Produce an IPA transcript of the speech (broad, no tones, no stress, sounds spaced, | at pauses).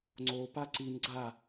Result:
ŋ͡ǀ o p a ǀ i n ɡ͡ǀ a